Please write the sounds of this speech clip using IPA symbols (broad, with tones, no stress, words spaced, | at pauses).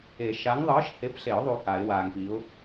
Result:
e˨˩˦ ʃa˨˥ŋðˤɯː˨˥ʃ he˨˥pɬe˨˩˦ʊ̯ðˤu˨ ha˨˩˦ɪ̯waː˨ŋpi˨˥ʊ̯